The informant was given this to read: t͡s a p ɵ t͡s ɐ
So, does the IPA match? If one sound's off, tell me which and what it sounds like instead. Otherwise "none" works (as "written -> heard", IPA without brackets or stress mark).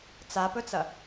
none